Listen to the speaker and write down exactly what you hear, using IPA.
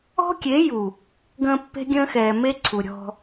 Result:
ɔ̤˦ kʲ e˨˦ j u˨ | ɡ ə̃ː˨ pː e̤˦ ɡʲ ə̃ː˦ x ɛː˨ m e˦ ǀʰ u˨ ɾʲ ɔ̤˦

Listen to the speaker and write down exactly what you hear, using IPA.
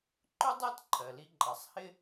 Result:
ǃ ʊ˥ dˤ æ˥ t ǃʰ ɜ˩ l i˧ ǃʼ ɑ˩ sˤ h ɪ˧

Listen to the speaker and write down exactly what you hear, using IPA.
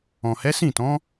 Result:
ɔ̃˨ h ɛ˨˦ s ĩ˦˨ t ɔ̃˨˦

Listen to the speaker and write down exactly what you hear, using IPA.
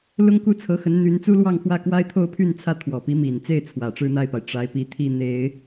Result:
l ʊ˥ ŋ k u˥˩ t͡sʰ ɤ˧˥ x ə˧˥ n n̪ y˧˥ n t͡s u˥ l w ɑ˥˧ ŋ x w ä˥˩ k w a˥ ɪ̯ t̪ʰ o˥˧ ʊ̯ pʰ y˥˩ n t͡sʰ ä˥ t̪ʰ w ɔ˨˩ p i˧˥ m i˨˩ n t͡s e˥˩ ɪ̯ t͡sʰ w ä˨˩ ʈ͡ʂ ɻ̩˥˧ n̪ a˥˩ ɪ̯ p a˩ ɪ̯ ʈ͡ʂ a˧˥ ɪ̯ p i˧˥ t̪ʰ i˥˩ n̪ e˨˩˦ ɪ̯

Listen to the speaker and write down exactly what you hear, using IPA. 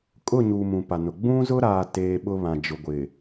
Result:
kʼ ʊ˦˨ ɲ uː˨ m ũ˨ p a˨ n ʊ˨ ɡ͡b ũ˦ z ʊ˦ ɾ aː˨ t eː˦ ɓ ʊ˦ β ã˨ d͡ʒ ʊ˨ ɡʷ ɪ˨

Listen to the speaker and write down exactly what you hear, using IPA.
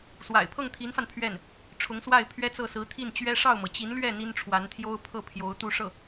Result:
s w a̰˨˩ ɪ̯ pʰ ɤ˥˩ ŋ t̪ʰ i˧˥ n f a˧ n pʰ ɥ ɛ˥˩ n | ʈ͡ʂʰ ʊ˧˥ ŋ s w a˥˩ ɪ̯ pʰ ɥ ɛ˥ t͡s ɤ˥˩ s ɹ̩˧˥ t̪ʰ i˥˩ n t͡ɕ ɥ ɛ˥ ʂ ɑ˥˩ ʊ̯ m ɤ˩ t͡ɕ i˧˥ n l ɥ ɛ˥˩ n̪ i˥ n ʈ͡ʂʰ w a˧˥ n t̪ʰ j o˥ ʊ̯ pʰ ɤ˥˩ pʰ j o˧˥ ʊ̯ t̪ u˥˧ ʂ ɤ˥˩

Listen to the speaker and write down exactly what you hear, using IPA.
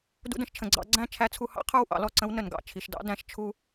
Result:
d ṵ˧ d ə̃˧ ʃ t͡ʃʰ ə̃˩ ɡ͡ǀ ɑ̰˨˩˦ ɡ͡ǀ æ̃˥˩ t͡ʃʰ æ˧˥ t͡sʰ u˧ h ɑ̰˥ qʰ ə˞˥˩ w ʔ ɑ̰˨˩˦ l ɔ˥˩ ǀ ə̃˧˥ w n ə˩ n ɡ ɑ̰˥˩ t͡ʃʰ i˩ ʃ d ɑ̰˧˥ d æ̃˨˩˦ ʃ t͡ʃʰ u˥

